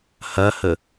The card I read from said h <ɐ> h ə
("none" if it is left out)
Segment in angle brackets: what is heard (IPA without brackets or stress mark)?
ɐ